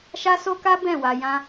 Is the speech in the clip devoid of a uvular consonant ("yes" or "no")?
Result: yes